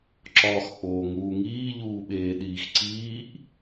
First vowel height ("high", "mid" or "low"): low